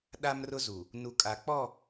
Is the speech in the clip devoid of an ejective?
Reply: no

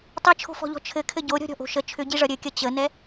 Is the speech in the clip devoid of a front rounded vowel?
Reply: no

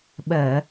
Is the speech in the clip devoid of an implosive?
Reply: no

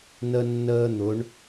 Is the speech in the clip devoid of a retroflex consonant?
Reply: no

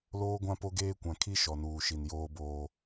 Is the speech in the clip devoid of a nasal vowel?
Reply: no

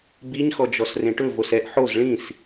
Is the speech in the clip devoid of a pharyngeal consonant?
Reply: no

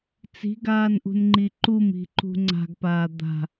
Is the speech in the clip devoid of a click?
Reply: no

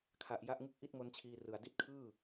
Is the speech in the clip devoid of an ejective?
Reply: yes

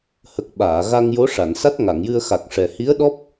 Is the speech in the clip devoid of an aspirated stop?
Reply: yes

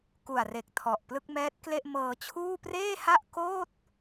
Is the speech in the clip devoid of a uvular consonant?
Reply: yes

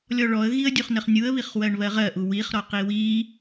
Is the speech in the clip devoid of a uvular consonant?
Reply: no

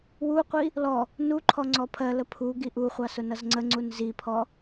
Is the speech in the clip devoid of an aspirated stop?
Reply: no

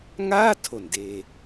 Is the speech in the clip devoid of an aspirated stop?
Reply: no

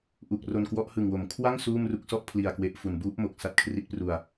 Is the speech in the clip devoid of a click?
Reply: yes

